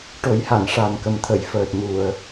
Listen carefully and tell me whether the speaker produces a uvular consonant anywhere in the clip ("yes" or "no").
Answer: no